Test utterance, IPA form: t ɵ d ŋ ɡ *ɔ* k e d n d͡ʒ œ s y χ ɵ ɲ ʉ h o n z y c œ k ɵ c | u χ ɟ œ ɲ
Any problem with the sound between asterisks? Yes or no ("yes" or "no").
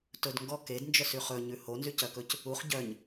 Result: no